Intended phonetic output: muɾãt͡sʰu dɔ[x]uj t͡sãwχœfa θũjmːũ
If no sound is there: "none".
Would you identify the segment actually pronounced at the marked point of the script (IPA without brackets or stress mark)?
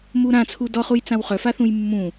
χ